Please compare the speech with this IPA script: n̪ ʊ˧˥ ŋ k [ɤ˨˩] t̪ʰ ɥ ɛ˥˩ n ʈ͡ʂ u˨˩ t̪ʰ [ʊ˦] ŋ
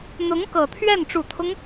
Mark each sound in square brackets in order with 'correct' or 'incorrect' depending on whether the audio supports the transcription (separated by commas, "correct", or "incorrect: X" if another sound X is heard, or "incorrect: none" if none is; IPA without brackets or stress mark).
correct, correct